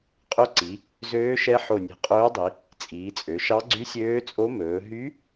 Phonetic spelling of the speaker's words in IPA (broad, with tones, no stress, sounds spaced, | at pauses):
qʼ ɵ˧˥ ǀ i˩˧ | z øː˧˥ ʃ ɛ˧˥ ħ o˧˩ nʲ e̤˧˩ qʼ ɵː˧˥ dˤ i˩˧ | t͡sʼ iː˩˧ t͡sʼ ø˩˧ ʃ ɑ˧˥ ɡ͡ǀ y˧˥ sʲ øː˧˥ t͡sʼ o˧˥ m ɵː˩˧ ɦ y˧˥